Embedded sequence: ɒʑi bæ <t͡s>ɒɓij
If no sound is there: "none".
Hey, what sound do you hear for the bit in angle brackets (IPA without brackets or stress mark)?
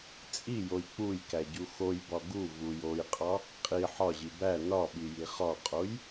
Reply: n